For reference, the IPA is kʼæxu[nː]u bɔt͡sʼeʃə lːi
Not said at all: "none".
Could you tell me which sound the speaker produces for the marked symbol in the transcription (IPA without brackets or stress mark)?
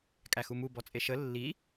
m